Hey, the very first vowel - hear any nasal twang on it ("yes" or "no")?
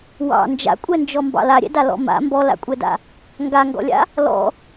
no